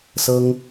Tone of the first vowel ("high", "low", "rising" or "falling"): high